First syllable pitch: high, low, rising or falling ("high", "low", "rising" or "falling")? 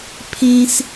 high